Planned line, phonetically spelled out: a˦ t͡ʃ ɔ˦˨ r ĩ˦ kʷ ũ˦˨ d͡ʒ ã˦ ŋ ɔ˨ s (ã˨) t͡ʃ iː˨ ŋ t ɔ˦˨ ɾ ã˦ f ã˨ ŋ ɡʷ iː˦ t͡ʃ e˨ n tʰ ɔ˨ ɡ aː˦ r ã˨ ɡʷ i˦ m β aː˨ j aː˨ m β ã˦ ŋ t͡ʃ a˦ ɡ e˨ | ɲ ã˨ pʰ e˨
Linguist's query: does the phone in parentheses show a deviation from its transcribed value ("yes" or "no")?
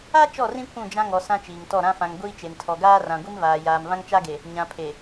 yes